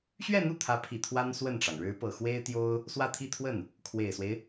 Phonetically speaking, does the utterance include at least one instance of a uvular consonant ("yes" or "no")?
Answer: no